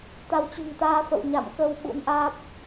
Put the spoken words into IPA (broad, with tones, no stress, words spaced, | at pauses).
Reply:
t̪a˨˦wt͡ɕṳ˨˩ŋt̪aː˧fə̰˧˨w ɲa̰˧˨mkə˧w ɓṵ˧˥nʔaː˦˥p̚